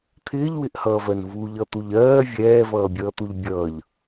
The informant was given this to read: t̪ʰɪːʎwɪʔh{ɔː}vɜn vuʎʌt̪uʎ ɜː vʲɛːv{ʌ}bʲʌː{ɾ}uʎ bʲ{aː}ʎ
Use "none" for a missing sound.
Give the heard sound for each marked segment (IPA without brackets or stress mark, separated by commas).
ʌː, ʌː, t̪, ʌː